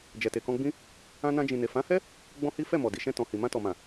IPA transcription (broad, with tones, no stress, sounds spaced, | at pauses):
d͡ʒ ɛ˨ t e˨ k ɔ̃˧ ɡ͡b ĩ˦ | ã˧ n ã˧ d͡ʒ ĩ˨ n e˨ f ã˨˦ h ɛ˦ | ɡ͡b ɔ̃˦ h i˦ f ɛ˦˨ m ɔ˨ d i˨ ʃ ɛ̃˧ t ɔ̃˨ h i˨ m ã˧ t ɔ˨ m ã˨